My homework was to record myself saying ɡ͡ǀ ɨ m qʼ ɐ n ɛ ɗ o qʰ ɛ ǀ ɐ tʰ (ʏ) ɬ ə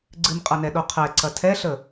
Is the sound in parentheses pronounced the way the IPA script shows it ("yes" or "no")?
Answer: no